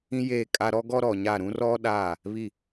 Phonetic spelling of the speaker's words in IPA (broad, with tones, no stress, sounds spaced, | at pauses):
ĩ˦ j eː˦˨ kʼ a˦ ɾ ɔ˦ ɡ ɔ˦ ɾ ɔ˨ ɲ a˦˨ ɾ ũ˦ r ɔ˦ ɗ a˦˨ | β i˦˨